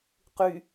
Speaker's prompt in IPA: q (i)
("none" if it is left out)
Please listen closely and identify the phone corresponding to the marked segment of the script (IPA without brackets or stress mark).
y